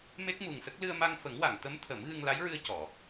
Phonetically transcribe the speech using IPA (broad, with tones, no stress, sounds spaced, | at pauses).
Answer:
m e˦˥ k̚ m u˨˩ ŋ s ə˦˥ k̚ l ɨ˧ ə̯ m a˧ ŋ f ə˨˩˦ ŋ w a˨˩˨ ŋ t̪ ə˧˥ m t̪ʰ ə˨˩˦ m ɣ ɨ˧ ŋ l a˧˥ j ɹ ɨ˧ ə̯ c ɔ˨˩˨